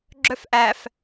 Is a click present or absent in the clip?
present